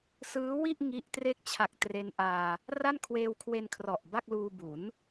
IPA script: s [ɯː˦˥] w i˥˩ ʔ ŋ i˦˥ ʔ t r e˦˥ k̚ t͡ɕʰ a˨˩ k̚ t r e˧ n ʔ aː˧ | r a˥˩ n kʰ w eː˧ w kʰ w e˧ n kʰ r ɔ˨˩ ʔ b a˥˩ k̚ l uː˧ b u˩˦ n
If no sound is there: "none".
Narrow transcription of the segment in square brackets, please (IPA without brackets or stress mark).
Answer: ɯː˦˥